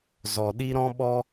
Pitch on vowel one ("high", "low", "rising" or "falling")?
low